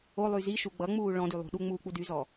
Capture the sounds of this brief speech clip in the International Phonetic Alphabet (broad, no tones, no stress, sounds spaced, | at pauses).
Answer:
o lˠ y z i ʃ u ɡ͡b ʌ ŋ͡m uː ɭ ɔ̃ d y lˠ ṳ ɗ u ŋ͡m uː k͡p u d y z ɔ